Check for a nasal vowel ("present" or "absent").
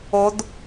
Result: absent